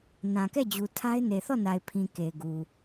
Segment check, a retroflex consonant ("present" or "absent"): absent